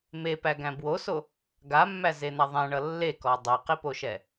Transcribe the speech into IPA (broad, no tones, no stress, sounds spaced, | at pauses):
m e p æ ɡ æ̃ b w o s o | ɡ a mː æ z e n̪ a ðˤ æ̃ ɳ ʌ lː e k ɔ dˤ i q i p o ʃ ɛ